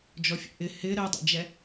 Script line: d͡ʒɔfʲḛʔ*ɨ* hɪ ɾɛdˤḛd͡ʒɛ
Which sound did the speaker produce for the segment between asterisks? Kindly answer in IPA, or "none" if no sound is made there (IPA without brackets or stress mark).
ɪ